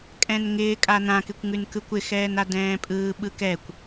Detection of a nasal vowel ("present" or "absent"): present